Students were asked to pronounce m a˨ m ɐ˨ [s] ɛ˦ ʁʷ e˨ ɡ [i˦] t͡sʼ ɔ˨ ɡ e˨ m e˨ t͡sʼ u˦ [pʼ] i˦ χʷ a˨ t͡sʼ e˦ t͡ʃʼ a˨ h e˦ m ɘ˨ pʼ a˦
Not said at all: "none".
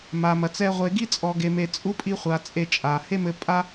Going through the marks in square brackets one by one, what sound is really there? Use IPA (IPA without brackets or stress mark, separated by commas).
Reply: t͡s, i˦, pʼ